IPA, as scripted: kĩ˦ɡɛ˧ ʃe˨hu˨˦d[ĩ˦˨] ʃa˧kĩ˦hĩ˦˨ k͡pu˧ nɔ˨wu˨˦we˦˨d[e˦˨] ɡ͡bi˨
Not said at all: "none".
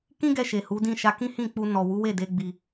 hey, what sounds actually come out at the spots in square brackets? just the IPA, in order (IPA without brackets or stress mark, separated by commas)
ĩ˦˨, e˧